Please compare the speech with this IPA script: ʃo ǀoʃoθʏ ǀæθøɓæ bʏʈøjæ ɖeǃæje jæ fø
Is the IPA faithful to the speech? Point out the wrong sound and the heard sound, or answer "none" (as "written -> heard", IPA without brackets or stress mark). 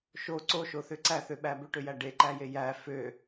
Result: none